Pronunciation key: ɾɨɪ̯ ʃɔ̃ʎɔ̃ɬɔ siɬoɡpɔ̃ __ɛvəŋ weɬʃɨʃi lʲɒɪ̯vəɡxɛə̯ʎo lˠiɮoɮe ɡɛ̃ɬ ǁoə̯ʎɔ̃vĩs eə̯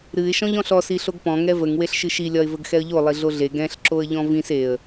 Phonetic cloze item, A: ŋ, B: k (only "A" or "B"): A